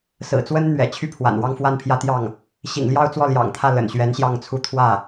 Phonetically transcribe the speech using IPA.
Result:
sɹ̩˨˩t͡swə˥nn̪ɥɛ̰˨˩ t͡ɕʰy˥˩pʰwa̰˨˩nwɑ˥˧ŋfwa˥˩n pʰjä˥t̪jɑ˥˩ŋ | ɕḭ˨˩ŋljɑ˥˧ʊ̯ t͡swɔ˥˩ljɑ̰˨˩ŋt̪ʰä˥˩ lə̰˨˩nɕɥɛ˧˥nɕjɑ˥˩ŋt͡sʰu˥ t̪ʰwä˥˩

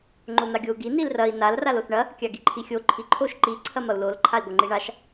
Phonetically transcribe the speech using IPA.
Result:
ŋ͡ǃon̪aɡʲou̯ɡi nilrɐi̯ nal raloθɳɐ | kʲaɡiǃʰixʲo ǃʰiǃʰoʃ ǃi ǀʰɐmɐu̯lol ǃʰai̯ɡʷɐŋ͡ǃiɳaʃ

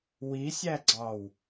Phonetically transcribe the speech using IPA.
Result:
wisʲæɡ͡ǀɑw

